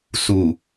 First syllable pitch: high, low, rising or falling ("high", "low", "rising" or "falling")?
low